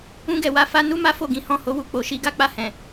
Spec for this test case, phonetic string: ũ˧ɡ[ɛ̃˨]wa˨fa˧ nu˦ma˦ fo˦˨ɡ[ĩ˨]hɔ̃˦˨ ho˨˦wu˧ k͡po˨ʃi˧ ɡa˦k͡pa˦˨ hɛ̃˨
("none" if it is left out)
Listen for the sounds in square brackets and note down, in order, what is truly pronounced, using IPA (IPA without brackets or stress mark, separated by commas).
ɛ˨, ĩ˨˦